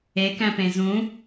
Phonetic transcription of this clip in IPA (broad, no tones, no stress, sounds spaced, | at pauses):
e k æ̃ p ẽ z ũ